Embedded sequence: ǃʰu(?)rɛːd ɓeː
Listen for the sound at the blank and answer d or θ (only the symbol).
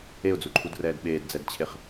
d